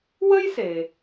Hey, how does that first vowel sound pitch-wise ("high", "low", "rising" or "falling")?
high